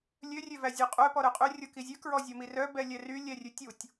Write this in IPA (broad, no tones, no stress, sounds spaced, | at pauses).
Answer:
lʲ ø rʲ ø v æ zʲ œ qʼ œ p ɔ ɾ œ qʼ ø rʲ o k i zʲ ʉ k ɹ ɔ zʲ o m i r œ b ɛ lʲ ɛ r y lʲ ɛ rʲ ʉ tʲ u tʲ